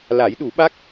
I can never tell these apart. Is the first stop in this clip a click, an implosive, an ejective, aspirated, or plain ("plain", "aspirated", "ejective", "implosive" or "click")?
implosive